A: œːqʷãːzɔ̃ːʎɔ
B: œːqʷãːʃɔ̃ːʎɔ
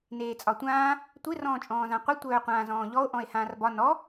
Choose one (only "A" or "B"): A